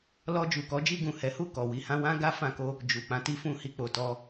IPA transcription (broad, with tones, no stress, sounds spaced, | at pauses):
l ɔ˧ d͡ʒ u˨ k ɔ˨˦ d͡ʒ i˧ ɡ ũ˨ h ɛ˨˦ h u˦˨ k ɔ˨ w i˧ h ã˧ w ã˦ ɡ a˦ f ã˧ k o˧ | d͡ʒ u˨ k͡p ã˨˦ t i˦ f ũ˦ h i˦˨ k͡p o˨ t ɔ˧